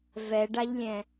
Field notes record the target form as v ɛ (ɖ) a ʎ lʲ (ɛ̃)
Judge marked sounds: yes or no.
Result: yes, yes

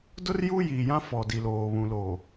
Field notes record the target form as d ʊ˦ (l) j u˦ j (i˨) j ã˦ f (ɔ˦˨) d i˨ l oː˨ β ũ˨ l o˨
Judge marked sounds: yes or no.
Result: no, yes, no

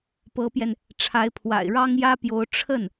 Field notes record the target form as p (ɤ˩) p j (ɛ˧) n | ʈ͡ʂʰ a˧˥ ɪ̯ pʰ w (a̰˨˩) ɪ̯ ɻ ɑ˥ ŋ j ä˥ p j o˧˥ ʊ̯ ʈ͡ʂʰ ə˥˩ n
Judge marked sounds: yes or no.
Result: no, yes, yes

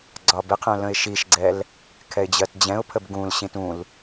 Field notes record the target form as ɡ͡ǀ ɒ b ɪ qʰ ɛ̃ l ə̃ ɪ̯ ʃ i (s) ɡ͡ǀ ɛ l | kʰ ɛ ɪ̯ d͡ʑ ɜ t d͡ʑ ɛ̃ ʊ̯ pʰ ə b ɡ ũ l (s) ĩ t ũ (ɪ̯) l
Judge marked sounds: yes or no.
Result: no, no, no

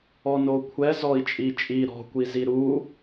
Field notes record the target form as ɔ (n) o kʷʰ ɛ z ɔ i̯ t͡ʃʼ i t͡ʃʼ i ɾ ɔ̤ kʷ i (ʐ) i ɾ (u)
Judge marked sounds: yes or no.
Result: yes, no, yes

